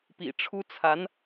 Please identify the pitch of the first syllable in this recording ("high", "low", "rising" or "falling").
low